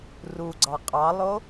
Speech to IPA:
ruɡ͡ǀɑ qʼɑlˠo

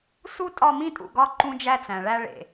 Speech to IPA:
su˦tʼɒ˦˨ mĩ˦tʼṵ˨ɡɒ˦ ǃũ˦d͡ʒæ˦t͡sæ̃˨ɭæ˦ ɭḛ˨

